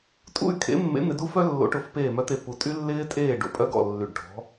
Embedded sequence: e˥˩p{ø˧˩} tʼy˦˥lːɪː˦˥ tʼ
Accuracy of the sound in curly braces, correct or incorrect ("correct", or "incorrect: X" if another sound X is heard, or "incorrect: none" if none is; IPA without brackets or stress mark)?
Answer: incorrect: u˧˩